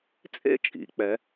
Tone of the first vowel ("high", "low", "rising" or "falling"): falling